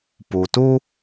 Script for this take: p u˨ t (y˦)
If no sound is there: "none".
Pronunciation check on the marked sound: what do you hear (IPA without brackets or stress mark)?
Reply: u˦